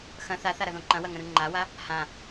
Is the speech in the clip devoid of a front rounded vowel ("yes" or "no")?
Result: yes